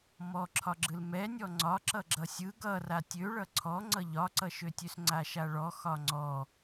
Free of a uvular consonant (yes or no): yes